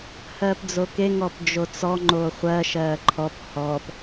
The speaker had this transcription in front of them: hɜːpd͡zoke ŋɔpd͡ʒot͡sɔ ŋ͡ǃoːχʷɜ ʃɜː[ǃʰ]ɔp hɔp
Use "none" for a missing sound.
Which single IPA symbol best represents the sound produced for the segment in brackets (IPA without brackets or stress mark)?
ǃʰ